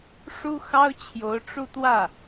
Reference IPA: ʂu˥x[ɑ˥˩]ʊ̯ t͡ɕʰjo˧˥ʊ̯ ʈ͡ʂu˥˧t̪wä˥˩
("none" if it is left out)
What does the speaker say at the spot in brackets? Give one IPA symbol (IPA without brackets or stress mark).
ɑ˥